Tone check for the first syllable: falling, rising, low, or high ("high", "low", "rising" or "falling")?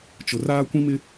low